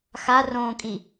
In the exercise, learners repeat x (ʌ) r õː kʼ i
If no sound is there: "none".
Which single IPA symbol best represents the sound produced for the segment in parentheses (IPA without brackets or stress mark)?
a